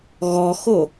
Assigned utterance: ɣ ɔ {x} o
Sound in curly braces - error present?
no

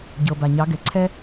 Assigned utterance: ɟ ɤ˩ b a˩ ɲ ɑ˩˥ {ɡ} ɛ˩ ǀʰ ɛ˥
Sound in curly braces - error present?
no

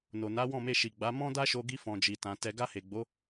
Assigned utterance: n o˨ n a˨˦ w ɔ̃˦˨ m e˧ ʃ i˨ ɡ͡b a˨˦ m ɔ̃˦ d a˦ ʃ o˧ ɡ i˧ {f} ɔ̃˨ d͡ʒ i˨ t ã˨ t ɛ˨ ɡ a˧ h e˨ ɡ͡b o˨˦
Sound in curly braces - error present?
no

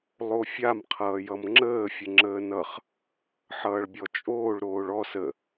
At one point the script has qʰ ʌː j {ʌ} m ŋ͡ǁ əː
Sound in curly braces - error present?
no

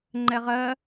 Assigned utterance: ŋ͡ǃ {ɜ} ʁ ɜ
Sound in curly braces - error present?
yes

